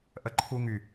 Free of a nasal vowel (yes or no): yes